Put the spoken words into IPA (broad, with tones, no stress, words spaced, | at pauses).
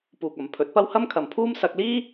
puː˨k̚ ɐ˨m pʰɵ˨˥t̚pɐ˥w hɐ˥mkʰɐ˨mpʰuː˥m sɐ˧k̚liː˥